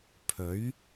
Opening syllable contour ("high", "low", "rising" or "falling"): rising